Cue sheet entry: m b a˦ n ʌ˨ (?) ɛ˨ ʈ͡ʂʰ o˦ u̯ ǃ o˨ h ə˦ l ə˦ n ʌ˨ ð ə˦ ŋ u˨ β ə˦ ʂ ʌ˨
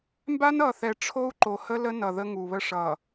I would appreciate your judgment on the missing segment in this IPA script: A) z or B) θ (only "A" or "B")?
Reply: B